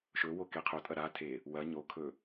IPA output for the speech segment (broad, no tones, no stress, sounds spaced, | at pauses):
ʃ ɵ w o k e qʰ o tʼ ɐ ɾ a tʰ e | w ɐ ɲ o kʰ ɵ